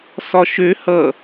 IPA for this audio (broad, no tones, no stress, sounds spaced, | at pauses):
s ɒ ʃ ø h ʌ